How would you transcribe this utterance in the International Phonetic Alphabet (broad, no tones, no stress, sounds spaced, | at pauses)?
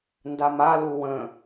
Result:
n d a m a l u w ə̃